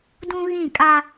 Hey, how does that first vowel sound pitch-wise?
high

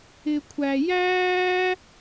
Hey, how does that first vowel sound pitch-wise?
low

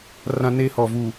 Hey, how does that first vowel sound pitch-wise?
high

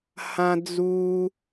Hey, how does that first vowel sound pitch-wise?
high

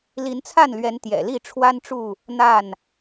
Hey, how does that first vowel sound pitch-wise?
rising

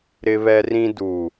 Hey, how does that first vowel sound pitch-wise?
high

